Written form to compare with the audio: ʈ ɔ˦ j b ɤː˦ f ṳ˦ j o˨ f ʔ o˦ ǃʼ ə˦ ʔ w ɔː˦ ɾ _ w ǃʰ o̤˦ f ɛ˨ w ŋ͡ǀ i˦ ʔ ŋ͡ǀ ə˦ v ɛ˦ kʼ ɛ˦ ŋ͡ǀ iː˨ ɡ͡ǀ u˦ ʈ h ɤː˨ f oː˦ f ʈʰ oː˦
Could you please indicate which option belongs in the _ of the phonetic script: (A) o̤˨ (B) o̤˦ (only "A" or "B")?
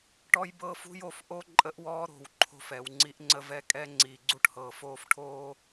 A